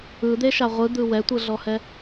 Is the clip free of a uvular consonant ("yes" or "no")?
no